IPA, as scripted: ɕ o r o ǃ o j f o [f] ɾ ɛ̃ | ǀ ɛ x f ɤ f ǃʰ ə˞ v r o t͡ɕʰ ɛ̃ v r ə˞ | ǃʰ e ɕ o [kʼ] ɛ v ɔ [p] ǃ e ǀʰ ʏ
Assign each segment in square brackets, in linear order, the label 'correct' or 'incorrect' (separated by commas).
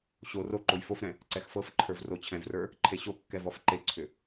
correct, incorrect, incorrect